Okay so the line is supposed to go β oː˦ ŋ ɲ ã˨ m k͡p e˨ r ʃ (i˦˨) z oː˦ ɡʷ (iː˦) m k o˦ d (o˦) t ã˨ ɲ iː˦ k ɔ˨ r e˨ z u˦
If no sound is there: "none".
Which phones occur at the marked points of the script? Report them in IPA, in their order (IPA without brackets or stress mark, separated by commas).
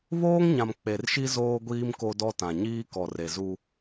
i˦, iː˦, ɔ˦